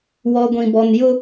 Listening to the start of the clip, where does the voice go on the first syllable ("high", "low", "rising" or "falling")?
low